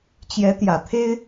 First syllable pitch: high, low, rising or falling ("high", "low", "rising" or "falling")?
rising